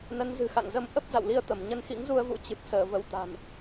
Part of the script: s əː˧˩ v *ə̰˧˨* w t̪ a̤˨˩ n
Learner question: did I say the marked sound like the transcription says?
no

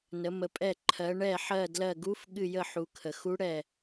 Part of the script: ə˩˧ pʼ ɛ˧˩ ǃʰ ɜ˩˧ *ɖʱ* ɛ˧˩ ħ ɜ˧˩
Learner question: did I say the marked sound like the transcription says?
no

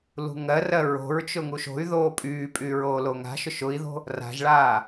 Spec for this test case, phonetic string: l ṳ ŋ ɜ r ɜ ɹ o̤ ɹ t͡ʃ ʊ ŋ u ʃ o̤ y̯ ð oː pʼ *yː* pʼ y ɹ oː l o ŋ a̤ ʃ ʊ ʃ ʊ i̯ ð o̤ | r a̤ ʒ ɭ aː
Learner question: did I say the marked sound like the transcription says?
yes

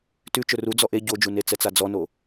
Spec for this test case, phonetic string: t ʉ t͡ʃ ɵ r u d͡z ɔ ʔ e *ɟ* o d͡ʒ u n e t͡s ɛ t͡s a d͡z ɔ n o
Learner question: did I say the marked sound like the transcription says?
yes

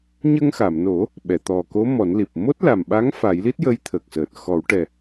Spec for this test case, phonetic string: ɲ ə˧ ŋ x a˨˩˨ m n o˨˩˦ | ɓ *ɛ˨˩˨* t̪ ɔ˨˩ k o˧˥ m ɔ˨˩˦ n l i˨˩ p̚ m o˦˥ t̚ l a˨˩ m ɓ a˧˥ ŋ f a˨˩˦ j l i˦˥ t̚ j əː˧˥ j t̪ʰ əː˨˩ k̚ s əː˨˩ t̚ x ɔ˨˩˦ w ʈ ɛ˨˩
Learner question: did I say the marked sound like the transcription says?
yes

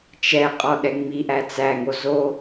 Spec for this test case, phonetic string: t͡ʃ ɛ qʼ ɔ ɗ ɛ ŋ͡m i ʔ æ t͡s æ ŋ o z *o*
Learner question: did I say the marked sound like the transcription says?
yes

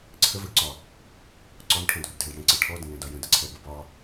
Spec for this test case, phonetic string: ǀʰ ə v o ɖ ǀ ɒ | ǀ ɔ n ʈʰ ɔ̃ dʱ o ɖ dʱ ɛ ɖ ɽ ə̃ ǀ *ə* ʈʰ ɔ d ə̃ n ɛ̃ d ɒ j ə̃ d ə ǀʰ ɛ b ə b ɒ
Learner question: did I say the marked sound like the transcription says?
yes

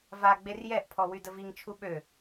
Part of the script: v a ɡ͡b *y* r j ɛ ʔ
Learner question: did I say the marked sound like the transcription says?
no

